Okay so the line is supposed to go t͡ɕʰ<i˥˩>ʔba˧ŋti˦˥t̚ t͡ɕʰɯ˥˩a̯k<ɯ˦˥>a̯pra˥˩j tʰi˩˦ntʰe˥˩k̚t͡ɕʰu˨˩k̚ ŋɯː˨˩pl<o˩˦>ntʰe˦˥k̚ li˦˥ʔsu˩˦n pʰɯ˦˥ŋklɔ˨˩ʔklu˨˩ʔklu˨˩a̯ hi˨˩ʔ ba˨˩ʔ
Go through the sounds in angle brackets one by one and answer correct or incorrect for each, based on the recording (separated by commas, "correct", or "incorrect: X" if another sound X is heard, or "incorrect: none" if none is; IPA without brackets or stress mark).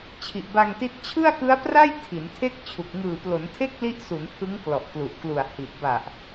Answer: incorrect: i˨˩, correct, correct